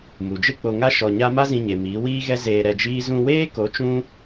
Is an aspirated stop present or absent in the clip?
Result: absent